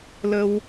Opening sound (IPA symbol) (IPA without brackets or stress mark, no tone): l